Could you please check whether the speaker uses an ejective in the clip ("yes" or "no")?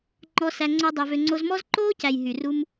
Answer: no